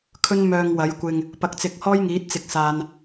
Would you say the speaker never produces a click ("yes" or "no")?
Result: yes